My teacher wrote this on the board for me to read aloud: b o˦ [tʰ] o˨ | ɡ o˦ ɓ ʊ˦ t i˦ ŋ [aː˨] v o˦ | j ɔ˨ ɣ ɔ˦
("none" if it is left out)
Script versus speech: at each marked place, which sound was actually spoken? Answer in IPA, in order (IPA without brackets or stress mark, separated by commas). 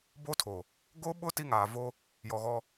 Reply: tʰ, aː˨